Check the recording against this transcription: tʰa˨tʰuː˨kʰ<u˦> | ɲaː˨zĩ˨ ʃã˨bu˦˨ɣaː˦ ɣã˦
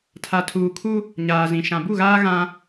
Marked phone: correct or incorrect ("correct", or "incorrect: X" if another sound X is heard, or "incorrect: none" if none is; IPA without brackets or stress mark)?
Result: correct